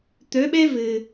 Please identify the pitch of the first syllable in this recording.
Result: rising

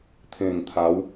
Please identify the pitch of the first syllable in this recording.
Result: low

